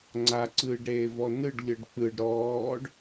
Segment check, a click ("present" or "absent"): present